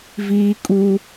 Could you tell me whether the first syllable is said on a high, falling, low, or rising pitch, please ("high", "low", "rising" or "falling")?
high